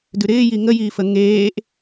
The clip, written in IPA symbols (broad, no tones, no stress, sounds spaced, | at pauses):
d ʉ ɾ ɪː j i ŋ ə j iː f ə ŋ eː ʔ